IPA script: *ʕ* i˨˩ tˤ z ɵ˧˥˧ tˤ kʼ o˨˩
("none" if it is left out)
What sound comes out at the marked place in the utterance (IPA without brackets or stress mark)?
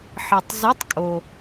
ħ